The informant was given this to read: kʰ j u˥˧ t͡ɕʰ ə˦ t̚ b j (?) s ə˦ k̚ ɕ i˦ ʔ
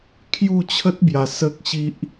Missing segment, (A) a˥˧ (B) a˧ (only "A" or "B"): B